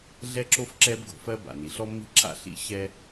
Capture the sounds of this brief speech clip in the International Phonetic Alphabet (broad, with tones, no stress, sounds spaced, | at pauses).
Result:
ɮ ɛ˥ ǁ o˥ f ǁ ɛ˥ b ɡ o̤˩ f ɜ˥ b a̰˩ n i˩ ɬ ɔ˥ mː i̤˥ ǁ a̰˥ ɬ ḭ˥ ɕ ɛ˥